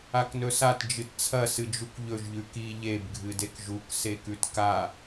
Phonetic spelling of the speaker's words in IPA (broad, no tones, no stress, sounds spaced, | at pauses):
a k n ɵ s a t d͡ʒ ɨ t t͡sʰ ɐ s ɨ d͡ʒ u k ʎ ɵ ʒ ʎ ʉ k i ʎ e b ɡʱ ɨ d e k ʒ u k s e k ʉ t k a